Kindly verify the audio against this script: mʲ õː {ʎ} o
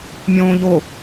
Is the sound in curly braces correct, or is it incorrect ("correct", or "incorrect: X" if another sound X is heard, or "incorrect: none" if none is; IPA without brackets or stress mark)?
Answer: correct